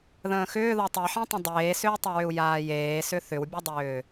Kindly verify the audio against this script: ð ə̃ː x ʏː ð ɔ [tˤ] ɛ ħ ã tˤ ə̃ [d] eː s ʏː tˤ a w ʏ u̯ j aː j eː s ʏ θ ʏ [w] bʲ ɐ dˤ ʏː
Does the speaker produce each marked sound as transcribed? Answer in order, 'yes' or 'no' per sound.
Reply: yes, no, yes

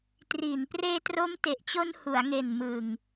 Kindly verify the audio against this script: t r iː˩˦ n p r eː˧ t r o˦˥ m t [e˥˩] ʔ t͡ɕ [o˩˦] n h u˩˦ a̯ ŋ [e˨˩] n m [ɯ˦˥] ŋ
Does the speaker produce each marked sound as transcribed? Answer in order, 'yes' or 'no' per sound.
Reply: no, no, yes, no

